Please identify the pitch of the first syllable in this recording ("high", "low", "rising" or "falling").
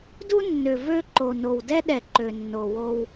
high